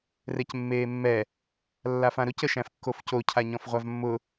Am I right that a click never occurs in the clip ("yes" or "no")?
yes